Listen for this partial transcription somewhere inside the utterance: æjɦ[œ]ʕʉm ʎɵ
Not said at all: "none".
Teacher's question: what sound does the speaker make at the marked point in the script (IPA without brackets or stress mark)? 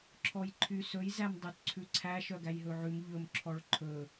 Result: ɵ